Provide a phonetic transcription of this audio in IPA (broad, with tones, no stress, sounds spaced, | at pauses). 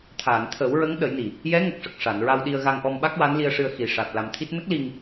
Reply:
t̪ʰ aː˨˩˨ n t̪ʰ əː˨˩˦ w ɹ ə˧˥ ŋ ɗ ə˨˩˦ j n i˨˩ | j ɛ˧˥ ŋ ə˨˩ k̚ ʂ ə˨˩ k̚ ʂ a˨˩˨ n ɹ a˧ w ɗ i˧ ə̯ ɣ a˧ ŋ ʔ ɔ˧ m ɓ a˦˥ k̚ w a˧˥ n l i˧ ə̯ ʂ ɨ˧ ə̯ x i˨˩ ʂ a˨˩ t̚ l a˧ m t̪ʰ i˦˥ t̚ n ə˦˥ k̚ l i˧ ŋ